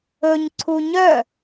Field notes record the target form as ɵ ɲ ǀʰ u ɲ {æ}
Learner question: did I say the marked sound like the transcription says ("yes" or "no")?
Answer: no